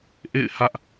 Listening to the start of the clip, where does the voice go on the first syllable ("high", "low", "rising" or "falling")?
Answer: falling